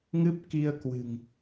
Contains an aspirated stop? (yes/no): no